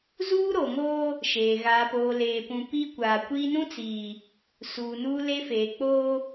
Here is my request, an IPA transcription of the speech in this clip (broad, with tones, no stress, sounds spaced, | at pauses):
z uː˦ ɾ o˨ ŋ oː˦ | ʃ eː˨ ɣ aː˨ p oː˨ l eː˨ p ũ˨ p iː˦ kʷ aː˨ kʷ iː˦ n ũ˦ t͡s iː˨ | s uː˨ n uː˦ l e˦ f eː˨ k͡p oː˦